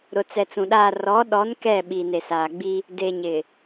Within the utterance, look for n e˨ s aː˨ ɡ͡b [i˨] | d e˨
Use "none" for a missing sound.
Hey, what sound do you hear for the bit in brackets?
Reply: i˦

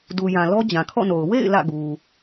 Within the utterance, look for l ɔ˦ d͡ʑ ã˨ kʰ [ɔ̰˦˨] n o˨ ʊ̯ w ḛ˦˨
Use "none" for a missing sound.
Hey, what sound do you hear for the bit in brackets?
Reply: ɔ̰˦˨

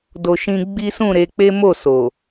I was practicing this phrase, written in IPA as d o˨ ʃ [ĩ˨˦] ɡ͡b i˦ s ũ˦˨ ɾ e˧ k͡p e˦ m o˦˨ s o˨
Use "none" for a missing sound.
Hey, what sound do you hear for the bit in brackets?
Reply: ĩ˧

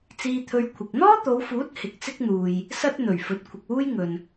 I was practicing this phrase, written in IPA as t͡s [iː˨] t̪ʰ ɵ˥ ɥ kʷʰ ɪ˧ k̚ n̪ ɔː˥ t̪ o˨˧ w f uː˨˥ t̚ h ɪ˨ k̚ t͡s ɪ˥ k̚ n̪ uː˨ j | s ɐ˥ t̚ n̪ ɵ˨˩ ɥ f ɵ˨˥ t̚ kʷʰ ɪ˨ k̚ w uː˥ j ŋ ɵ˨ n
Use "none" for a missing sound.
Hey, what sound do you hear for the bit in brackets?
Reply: iː˥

